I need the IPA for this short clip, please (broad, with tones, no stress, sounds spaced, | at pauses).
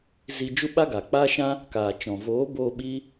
z i˧ d͡ʒ u˦ ɓ a˦ ɡ aː˨ k͡p aː˦ ʃ ã˦ | k aː˨ t͡ʃ ɔ̃˨ v oː˨˦ b oː˧ ɓ i˦